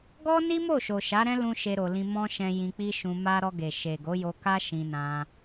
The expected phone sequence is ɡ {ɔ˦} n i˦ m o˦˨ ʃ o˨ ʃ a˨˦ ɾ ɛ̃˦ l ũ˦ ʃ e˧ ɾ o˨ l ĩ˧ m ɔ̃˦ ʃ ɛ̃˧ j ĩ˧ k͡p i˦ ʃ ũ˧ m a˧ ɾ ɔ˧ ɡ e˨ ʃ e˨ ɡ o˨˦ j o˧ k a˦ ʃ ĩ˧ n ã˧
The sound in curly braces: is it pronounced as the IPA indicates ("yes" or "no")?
yes